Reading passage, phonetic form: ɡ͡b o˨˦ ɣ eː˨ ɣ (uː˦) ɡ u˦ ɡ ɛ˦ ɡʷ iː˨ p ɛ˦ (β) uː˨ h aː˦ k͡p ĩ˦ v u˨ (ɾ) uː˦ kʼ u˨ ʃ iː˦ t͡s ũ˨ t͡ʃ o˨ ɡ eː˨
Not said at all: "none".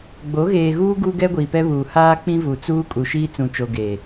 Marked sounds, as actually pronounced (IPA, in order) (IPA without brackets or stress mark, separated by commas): uː˦, β, t͡s